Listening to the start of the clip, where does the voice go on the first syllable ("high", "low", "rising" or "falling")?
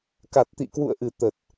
low